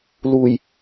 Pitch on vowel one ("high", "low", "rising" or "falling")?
low